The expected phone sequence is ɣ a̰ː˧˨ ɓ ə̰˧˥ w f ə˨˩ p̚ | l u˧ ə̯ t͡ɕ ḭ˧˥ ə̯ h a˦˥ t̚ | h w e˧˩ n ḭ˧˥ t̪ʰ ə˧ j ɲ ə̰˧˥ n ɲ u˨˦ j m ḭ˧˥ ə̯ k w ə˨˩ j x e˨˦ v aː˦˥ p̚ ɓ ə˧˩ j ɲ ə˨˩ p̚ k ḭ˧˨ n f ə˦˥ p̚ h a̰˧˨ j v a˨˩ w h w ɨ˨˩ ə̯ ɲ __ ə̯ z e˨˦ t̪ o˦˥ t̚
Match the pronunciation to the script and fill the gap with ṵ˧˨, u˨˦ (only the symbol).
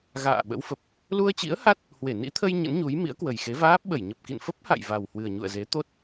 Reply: ṵ˧˨